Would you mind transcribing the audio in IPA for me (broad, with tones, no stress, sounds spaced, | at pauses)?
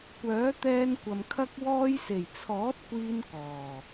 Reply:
kʷ œː˨˥ t̪ ɛː˧ n kʷ ɐ˨ m kʰ ɐ˧ k̚ w ɔː˧ j s e˨˩ j t͡sʰ ɔː˨˥ t̚ kʷ iː˧ n k ɔː˨˩